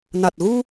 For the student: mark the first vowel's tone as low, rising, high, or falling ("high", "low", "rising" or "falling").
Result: low